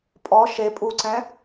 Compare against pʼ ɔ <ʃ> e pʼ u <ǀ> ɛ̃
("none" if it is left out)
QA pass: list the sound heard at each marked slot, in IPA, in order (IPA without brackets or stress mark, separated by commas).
ʃ, ǀ